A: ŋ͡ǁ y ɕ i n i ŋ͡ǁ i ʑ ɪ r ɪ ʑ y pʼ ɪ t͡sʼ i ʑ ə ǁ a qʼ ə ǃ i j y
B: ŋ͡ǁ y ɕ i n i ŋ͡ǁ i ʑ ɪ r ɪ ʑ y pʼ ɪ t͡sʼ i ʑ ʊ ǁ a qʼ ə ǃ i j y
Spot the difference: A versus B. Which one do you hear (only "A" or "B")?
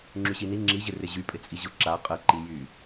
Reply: B